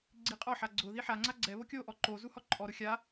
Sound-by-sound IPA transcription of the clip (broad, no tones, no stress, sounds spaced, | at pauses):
ɡ͡ǀ i qʼ ɔ ħ a ɡ͡ǀ ʊ ð i ħ a ŋ͡ǀ a ɡ͡ǀ ɛ β o kʲ o ʔ ɔ ǃ o z u h ɔ ǃʼ ɔ ɾ ʊ xʲ a